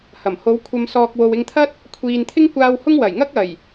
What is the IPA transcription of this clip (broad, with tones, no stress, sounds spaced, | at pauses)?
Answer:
h ɐ˨˩ m h o˨˧ w kʷʰ ɐ˨ m s ɔː˨ k̚ w o˨ w ɪ˧ ŋ t̪ʰ ɐ˥ t̚ | kʷʰ iː˨ n t̪ʰ ɪ˥ ŋ kʷ aː˧ w h ʊ˥ ŋ w ɐ˨˩ j ŋ ɐ˥ k̚ ɐ˨˩ j